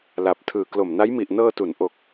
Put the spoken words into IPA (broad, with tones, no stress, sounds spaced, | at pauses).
l a˨˩ p̚ tʰ ɯː˨˩ k l o˨˩ m n a˦˥ j m i˨˩ ʔ n ɤː˧ t u˩˦ n ʔ o˨˩ k̚